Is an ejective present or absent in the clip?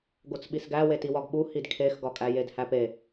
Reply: present